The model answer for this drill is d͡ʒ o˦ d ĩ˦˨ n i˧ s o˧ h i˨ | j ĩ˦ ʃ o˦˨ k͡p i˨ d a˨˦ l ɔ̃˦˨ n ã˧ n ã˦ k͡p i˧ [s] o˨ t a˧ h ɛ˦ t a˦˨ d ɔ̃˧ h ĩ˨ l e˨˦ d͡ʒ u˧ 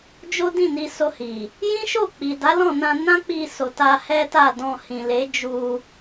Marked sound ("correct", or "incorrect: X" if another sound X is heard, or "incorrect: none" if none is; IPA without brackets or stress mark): correct